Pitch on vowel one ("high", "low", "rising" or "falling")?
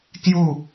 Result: falling